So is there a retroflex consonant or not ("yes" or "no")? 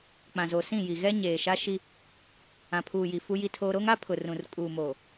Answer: no